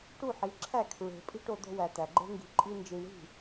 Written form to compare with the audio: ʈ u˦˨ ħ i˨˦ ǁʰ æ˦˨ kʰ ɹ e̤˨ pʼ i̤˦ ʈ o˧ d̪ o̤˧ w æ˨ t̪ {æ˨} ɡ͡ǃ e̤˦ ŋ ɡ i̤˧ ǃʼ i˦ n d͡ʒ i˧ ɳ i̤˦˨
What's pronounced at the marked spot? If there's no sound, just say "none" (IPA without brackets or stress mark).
æ˨